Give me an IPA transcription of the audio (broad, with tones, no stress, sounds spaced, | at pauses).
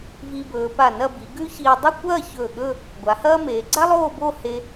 v i˧ b ɵː˩˧ p a˧˩ n ɐ˥˧ b i˩˧ ɡ ʉ˥ ç iː˧ dˤ ɨ˥˧ kʷ ɐː˥˧ ç ɵː˧˩ ɠ ɵ˥˧ | ɡʷ a˩˧ h ɐː˥ m eː˩˧ ɡ͡ǀ a˥ lˠ oː˥˧ b oː˥˧ h e˧